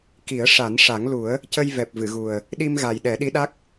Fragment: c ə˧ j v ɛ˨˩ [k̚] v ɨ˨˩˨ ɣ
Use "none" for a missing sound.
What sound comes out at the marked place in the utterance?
p̚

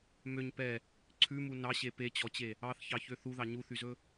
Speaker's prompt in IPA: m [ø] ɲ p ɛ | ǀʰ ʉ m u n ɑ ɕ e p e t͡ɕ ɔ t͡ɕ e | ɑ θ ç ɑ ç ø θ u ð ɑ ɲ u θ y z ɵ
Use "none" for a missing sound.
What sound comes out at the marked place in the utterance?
ø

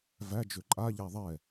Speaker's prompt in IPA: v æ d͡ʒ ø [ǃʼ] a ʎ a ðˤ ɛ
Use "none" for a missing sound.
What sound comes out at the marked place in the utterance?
ǃʼ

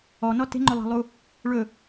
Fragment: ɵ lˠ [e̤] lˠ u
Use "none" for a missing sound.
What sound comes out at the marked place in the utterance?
e̤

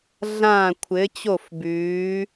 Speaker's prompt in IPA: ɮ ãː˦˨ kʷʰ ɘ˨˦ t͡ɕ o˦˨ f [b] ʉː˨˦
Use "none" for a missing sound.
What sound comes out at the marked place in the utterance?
b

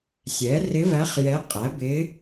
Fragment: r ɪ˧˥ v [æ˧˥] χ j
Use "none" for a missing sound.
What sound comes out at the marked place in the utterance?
æ˧˥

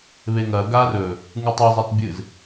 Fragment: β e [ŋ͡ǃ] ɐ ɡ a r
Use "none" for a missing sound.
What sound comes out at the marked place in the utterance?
ŋ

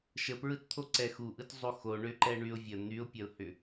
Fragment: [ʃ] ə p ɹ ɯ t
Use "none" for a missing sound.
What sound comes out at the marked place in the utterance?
ʃ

